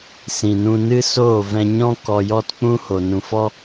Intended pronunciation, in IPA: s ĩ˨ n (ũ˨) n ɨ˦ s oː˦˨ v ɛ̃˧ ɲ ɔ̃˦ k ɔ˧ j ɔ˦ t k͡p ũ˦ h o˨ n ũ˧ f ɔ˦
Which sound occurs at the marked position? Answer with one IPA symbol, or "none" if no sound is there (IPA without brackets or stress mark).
ũ˧